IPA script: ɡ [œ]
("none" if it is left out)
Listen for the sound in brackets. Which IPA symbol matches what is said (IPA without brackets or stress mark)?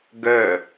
œ